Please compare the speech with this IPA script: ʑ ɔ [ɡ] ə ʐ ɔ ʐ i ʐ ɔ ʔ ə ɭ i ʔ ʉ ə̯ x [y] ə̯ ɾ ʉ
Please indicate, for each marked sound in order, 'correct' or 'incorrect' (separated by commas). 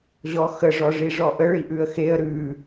incorrect, incorrect